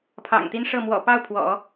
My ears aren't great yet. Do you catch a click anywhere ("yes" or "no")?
no